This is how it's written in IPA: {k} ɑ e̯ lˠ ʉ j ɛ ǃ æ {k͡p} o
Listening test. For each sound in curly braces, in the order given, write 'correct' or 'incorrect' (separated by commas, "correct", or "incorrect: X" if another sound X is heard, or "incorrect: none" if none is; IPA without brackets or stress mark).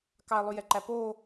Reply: correct, incorrect: p